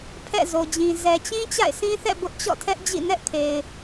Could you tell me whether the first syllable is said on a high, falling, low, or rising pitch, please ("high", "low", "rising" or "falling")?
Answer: falling